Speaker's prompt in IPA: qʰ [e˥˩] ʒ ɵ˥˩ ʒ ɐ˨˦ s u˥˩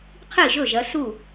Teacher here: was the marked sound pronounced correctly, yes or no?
no